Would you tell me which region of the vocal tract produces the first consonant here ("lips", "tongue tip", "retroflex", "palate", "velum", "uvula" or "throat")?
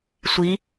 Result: tongue tip